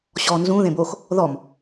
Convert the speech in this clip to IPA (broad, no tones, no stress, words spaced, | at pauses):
ɕɔ nzũ ðẽbox | ðɔm